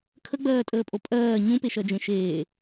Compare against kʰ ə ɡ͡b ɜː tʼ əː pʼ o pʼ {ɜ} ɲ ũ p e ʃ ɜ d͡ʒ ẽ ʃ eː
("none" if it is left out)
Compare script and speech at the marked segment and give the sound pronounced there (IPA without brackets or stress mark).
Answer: ɜː